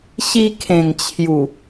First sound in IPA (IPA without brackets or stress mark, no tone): ɕ